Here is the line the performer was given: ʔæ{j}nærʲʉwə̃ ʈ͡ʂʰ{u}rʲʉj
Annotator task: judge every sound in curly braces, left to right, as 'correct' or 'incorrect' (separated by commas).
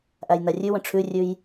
correct, incorrect